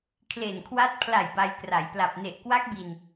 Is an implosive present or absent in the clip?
absent